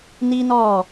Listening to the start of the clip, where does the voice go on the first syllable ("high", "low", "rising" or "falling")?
high